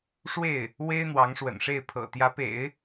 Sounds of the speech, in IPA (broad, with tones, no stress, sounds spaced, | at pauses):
ʂ w e˥˩ ɪ̯ | w e˥ ɪ̯ n̪ w ɑ˧˥ ŋ ʂ w ə̰˨˩ n ʂ e˥˩ ɪ̯ pʰ ɤ̰˨˩ t̪ j ä˧˥ p ḛ˨˩˦ ɪ̯